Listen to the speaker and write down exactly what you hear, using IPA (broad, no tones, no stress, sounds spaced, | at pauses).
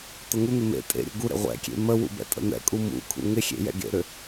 t̪ ə ŋ u n̪ ɪ m ḛ tʼ ḛ ɾʲ ə̰ ɡ u ɾ ḛ ʁʷ ɛ̰ kʲ ḛ m ə w ṵ b ɛ̰ tʼ ə̰ n̪ ɛ̰ kʼ u m ṵ kʰ ṵ ŋ ɪ xʲ ḛ j ɛ̰ ɡ ḛ ɾ ʏ